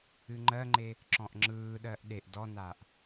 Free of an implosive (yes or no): no